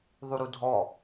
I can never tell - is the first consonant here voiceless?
no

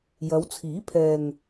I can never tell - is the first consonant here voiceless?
no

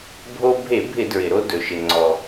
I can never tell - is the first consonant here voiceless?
no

